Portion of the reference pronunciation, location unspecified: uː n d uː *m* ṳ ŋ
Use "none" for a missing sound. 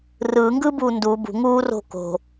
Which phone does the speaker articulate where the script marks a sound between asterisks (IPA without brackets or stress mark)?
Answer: b